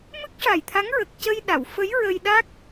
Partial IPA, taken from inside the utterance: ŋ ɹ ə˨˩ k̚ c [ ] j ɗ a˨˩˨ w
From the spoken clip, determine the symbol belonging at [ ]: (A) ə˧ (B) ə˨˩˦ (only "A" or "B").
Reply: A